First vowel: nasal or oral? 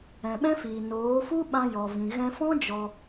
nasal